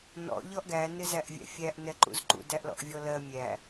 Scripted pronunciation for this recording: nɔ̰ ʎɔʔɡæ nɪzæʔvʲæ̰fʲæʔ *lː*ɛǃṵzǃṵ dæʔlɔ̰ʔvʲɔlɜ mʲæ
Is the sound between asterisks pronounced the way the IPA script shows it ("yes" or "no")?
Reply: no